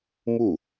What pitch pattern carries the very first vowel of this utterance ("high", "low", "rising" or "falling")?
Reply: falling